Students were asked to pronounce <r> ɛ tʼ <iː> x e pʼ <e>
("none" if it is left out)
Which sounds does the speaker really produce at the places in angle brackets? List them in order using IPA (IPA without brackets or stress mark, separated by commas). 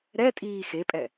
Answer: ɾ, iː, ɛ